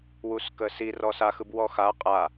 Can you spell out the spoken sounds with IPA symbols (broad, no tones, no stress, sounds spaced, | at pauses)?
w u s k ə s i r ɔ s a x ɯ b w ɔ x a qʼ a